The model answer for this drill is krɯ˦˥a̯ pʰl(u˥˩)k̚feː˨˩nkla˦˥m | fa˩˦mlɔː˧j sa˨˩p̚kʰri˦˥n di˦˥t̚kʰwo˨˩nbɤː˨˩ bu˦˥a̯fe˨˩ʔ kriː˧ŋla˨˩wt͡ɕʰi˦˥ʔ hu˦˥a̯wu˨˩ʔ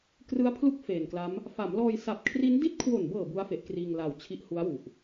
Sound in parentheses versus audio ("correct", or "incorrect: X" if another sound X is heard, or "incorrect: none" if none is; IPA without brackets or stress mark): correct